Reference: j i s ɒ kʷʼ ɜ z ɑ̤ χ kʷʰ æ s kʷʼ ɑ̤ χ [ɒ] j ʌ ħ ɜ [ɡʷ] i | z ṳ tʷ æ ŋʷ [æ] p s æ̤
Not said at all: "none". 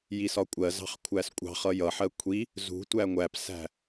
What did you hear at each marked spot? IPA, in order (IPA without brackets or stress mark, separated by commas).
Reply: ʌ, kʷʰ, æ